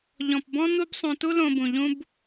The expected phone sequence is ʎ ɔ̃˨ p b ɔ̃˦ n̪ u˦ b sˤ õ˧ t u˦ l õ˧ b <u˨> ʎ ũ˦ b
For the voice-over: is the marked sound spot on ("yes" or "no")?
no